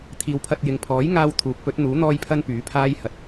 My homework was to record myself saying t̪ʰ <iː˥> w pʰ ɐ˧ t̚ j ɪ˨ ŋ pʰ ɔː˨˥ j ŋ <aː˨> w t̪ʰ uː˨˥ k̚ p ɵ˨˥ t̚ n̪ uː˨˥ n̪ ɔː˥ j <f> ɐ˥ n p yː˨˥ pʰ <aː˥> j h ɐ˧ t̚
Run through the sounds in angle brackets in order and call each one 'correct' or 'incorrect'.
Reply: incorrect: iː˨˧, incorrect: aː˧, incorrect: pʰ, correct

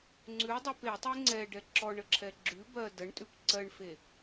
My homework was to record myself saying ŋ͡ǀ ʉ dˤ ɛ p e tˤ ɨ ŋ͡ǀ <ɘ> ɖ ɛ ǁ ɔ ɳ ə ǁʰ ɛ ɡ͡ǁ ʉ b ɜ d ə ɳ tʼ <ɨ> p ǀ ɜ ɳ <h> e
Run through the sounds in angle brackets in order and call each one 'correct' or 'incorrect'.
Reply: incorrect: ɛ, incorrect: ʉ, incorrect: f

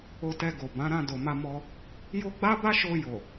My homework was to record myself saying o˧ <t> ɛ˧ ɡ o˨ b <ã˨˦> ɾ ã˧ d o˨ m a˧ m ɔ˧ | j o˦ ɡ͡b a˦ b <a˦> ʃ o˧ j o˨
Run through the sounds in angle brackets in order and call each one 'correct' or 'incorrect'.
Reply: correct, correct, correct

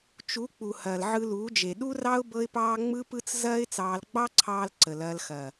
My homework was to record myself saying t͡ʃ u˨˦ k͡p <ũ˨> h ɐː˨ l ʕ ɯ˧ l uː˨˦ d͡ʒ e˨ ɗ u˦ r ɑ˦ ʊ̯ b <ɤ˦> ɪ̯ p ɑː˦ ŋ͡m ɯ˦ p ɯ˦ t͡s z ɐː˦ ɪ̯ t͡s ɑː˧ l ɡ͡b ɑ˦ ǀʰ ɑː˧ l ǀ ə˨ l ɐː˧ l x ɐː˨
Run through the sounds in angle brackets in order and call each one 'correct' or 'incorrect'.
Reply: incorrect: u˨, correct

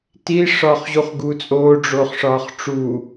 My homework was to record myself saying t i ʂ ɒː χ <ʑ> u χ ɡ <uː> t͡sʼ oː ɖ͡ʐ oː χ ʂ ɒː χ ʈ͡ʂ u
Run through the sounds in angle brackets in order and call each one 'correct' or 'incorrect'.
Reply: correct, correct

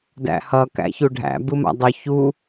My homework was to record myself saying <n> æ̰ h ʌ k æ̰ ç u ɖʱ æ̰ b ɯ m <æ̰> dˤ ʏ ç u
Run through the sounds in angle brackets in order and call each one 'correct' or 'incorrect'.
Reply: incorrect: d, incorrect: a̰

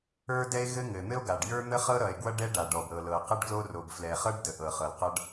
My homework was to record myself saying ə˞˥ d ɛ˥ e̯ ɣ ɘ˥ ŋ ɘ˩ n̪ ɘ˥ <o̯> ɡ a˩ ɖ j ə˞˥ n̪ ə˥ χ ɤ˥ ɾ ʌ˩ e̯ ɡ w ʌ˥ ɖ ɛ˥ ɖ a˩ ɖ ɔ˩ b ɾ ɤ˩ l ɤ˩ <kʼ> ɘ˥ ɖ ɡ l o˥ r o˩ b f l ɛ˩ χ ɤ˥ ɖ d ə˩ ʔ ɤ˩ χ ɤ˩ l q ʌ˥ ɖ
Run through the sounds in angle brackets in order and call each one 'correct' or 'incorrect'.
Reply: correct, incorrect: q

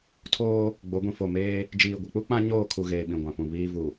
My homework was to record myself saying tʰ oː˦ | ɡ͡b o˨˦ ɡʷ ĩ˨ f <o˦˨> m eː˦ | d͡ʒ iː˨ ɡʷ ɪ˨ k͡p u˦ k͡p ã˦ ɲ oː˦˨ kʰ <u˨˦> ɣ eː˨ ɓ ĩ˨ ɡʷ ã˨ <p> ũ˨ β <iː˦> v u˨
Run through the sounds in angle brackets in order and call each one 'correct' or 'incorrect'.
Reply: correct, incorrect: u˨, correct, correct

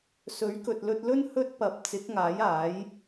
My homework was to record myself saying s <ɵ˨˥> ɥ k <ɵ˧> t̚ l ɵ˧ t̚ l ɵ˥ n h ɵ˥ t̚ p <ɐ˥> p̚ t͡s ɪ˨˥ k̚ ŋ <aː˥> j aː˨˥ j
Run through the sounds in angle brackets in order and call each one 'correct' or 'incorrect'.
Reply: correct, incorrect: ɵ˨, incorrect: ɐ˨, incorrect: aː˨˥

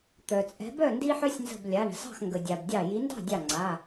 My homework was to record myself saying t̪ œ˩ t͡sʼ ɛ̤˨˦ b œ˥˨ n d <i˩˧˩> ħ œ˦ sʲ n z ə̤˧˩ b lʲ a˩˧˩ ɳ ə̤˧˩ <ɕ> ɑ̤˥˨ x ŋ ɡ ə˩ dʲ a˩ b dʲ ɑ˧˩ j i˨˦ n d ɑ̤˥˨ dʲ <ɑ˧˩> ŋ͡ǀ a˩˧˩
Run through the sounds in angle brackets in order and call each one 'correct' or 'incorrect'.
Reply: incorrect: i˦, incorrect: s, correct

